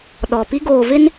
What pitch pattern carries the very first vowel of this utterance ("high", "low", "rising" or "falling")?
low